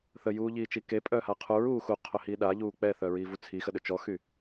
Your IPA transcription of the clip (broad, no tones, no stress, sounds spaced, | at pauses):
θ ə j uː ʎ iː t͡ʃ i k e pʼ œː h a qʰ u ɹ uː x u qʰ œ h iː ɗ a ʎ uː k͡p ɛ θ œ ɹ iː v u t͡sʰ i x ə ɗ ø t͡ʃ ɔ x y